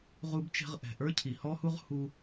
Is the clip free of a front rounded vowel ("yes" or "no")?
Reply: yes